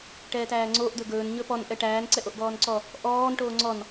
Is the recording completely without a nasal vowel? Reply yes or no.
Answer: yes